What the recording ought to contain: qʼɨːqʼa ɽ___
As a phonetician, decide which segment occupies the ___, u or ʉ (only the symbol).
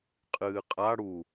u